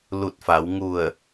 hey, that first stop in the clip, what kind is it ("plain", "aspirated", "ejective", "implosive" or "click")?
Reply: plain